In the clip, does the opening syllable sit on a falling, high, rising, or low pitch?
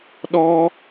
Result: high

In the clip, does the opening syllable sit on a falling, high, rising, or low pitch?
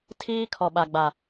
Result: high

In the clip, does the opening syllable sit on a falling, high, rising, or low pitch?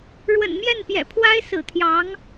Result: low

